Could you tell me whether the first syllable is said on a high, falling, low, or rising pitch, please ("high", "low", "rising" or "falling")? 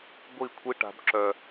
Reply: falling